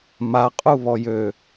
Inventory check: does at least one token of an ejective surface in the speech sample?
yes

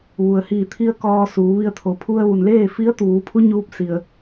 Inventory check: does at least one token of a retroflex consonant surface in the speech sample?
no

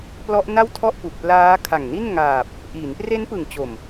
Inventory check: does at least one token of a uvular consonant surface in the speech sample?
no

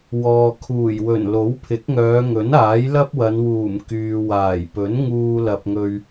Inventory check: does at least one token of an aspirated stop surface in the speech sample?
yes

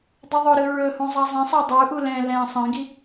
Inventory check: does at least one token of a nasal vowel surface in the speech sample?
yes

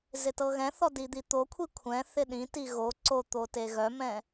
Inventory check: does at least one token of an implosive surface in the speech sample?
yes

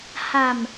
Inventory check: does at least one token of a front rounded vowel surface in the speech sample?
no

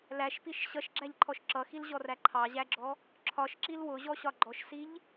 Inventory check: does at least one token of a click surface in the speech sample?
yes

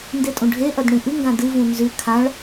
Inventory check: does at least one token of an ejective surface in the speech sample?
yes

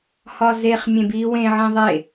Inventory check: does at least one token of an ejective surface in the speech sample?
no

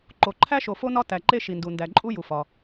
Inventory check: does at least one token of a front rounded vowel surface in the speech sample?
no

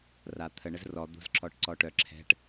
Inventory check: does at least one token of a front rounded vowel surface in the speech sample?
yes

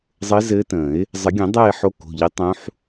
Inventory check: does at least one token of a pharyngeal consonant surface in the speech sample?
yes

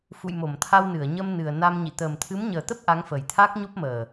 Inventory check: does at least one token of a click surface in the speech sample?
no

